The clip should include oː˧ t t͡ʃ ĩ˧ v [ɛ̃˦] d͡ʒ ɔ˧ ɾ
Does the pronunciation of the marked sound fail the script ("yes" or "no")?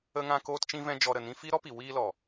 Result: yes